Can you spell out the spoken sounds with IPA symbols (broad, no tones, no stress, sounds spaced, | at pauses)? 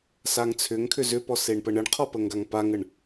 s a ŋ t͡sʰ ʏ ŋ kʰ ʏ z ʏ p ɔ s e ɳ p ə ɳ ə ɳ qʰ ɔ p ə ŋ ɡ a ŋ p a ŋ ə ɳ